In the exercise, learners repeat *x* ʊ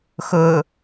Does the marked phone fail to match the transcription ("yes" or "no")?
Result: no